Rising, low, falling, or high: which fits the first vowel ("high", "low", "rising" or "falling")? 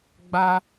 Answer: high